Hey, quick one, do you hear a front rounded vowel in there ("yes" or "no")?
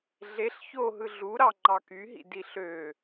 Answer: yes